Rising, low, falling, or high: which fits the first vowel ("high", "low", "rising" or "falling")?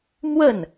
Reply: falling